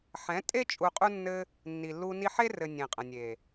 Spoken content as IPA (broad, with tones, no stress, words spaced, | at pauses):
ħɛ̃˨˦tʼe˦ t͡ʃʼu˧qʼu˦nːɘ˦ | nːi˨lːu˧ ni˧ħe˦rɘ˨ nʲẽ˨qʼə̃˨nʲe˨